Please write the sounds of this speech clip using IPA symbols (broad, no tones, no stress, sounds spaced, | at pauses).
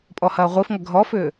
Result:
pʼ ɔ h ɐː ʁʷ i f ŋ ɐ ɡʱ ɔ f ʏː